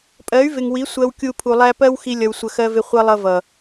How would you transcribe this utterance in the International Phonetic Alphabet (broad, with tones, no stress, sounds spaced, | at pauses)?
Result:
pʼ ɜ˨˦ y̯ v ɪ˨ ŋ w i˨˦ sʷ ɜ˧ w kʲ u˧ pʰ u˨ lˠ æ˧ p ɜ˦ w x i˧ lʲ ʌ˧ w sʷ ə˧ x ɜ˦ v ɪ˦ χʷ ʌ˧ lˠ ʌ˧ v ʌ˨